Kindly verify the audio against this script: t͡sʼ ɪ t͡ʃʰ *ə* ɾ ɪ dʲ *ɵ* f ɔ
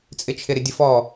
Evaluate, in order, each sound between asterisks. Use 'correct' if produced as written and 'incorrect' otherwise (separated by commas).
incorrect, incorrect